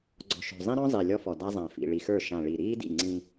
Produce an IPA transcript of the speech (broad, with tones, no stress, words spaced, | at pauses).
ɡ͡ǀɔ̤˨ʃɔ̤˨ zˤĩ˦ɾɔ̃˦ zˤi˨lʲɔ˦fɔ˨ da˦zˤã˨ fḭ˨ɭi˨xə˞˦˨ ʃã˨ɭi˨ɾiː˦dḭ˦˨ ŋ͡ǀĩ˦